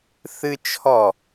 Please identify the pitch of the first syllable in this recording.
high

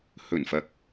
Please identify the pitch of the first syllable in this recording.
low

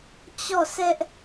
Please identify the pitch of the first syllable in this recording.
falling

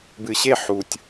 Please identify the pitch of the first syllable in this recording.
low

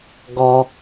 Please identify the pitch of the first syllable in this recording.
low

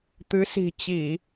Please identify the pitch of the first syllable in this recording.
rising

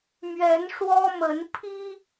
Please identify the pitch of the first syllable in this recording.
rising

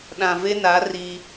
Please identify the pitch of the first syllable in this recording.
low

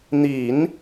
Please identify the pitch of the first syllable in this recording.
low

